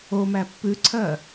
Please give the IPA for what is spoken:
o m æ pː ʉ ǀʰ ɜ

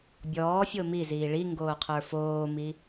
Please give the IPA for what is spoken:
bʲ ɔː fʲ o m i z iː ɭ i ŋ ɡ oː qʰ ə˞ f oː m i

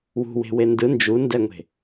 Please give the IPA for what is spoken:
w ṳ w e̤ w e n d ɯ n d͡ʒ u n d ɛ ŋʷ e̤

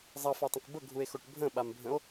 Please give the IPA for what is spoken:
zˤ ʌ f a tˤ ə̃ k b ə ɡʱ u e̯ x o ʈ bʱ ə̃ ɓ a m bʱ ə̃ o̯

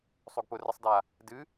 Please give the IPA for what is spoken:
sˤ o ɡ p ʊ r ə sˤ d a | d ɨ

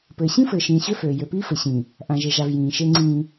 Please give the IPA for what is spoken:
p ɘː˨ ɕ ĩ˦ f ɘː˨ ʃ ĩː˨ ɕ ø˦ f øː˨ j ø˨ p iː˦ f ɘ˨ ɕ ĩː˨ | ʔ ã˨ ʒ e˨ ʒ a˨ v j ĩː˨ ʃ e˦ ŋ͡ǀ ĩː˦

